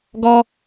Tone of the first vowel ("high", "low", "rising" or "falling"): high